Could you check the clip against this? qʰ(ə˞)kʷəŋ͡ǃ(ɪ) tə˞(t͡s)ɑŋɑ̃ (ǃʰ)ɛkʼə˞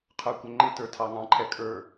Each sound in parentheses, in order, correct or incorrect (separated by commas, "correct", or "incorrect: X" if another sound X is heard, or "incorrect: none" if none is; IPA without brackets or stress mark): correct, correct, incorrect: tʰ, correct